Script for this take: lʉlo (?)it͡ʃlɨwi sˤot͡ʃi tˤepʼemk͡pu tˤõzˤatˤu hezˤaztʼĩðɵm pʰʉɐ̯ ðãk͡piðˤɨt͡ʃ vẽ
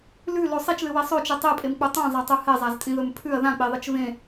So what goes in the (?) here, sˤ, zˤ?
sˤ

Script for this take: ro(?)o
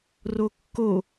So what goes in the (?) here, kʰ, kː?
kː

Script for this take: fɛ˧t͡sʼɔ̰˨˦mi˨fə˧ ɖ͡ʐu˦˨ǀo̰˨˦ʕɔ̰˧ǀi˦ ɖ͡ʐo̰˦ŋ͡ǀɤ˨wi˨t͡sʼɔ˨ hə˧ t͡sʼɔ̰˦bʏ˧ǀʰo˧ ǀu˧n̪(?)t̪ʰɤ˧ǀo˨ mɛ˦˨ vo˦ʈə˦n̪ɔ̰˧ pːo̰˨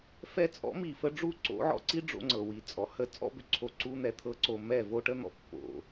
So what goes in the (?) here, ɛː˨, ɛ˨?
ɛ˨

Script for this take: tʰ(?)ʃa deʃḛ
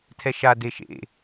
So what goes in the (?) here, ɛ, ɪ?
ɛ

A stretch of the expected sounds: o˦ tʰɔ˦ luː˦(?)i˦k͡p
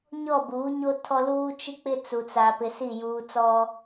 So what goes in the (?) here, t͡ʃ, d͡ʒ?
t͡ʃ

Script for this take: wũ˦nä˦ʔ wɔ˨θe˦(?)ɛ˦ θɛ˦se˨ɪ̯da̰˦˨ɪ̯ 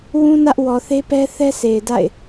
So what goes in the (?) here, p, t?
p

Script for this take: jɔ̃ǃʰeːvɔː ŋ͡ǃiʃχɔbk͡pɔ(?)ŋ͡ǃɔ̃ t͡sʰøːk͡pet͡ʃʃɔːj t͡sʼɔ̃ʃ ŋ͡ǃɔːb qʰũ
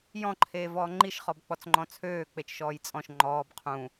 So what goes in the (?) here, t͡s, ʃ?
t͡s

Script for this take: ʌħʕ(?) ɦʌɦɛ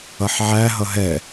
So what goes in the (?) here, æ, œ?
æ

